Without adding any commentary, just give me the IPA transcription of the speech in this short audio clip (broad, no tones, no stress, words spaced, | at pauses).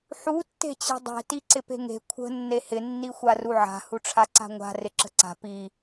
ħu tːe̤t͡ɕe̤dˤe̤ tiǀɪpe̤ŋe̤ kʷʰə̤ nːehɪ nːixʷaruʕa̤ huʈ͡ʂʰaǀa̤ŋʷa̤ rɪǁə̤ǀa̤ pi